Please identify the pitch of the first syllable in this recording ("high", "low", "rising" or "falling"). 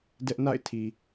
high